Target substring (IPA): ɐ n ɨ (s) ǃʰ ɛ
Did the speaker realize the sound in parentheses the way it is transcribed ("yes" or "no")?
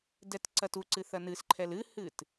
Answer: yes